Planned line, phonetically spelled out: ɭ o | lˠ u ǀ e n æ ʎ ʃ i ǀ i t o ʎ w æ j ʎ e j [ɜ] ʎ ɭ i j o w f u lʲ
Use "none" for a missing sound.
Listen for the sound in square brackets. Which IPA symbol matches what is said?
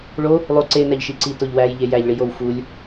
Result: æ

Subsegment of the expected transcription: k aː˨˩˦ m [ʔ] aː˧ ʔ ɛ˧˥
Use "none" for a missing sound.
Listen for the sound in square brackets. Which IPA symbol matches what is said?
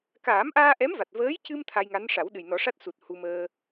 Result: ʔ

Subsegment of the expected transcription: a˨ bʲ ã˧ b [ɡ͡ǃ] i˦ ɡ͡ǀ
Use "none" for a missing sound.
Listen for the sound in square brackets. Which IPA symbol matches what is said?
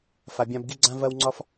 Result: ɡ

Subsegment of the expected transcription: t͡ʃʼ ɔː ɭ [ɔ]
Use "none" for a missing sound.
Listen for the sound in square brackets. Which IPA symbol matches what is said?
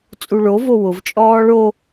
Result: o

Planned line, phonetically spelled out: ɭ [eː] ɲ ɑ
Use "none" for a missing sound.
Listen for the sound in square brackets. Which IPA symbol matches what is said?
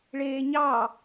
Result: eː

